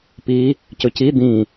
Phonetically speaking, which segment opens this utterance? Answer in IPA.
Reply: p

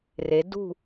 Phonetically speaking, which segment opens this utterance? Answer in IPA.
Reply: r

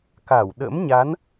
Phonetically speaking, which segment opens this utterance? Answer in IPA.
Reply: k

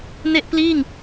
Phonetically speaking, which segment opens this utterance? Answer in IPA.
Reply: n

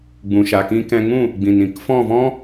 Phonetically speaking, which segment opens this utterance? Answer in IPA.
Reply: ɡ͡b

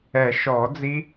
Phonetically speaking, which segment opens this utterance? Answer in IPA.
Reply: ɛ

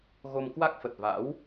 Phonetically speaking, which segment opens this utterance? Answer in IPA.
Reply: ɣ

